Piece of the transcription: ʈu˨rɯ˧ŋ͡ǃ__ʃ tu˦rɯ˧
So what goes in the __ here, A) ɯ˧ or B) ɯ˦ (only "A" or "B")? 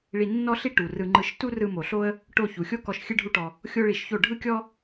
A